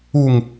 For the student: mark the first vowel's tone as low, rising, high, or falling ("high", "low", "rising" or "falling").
low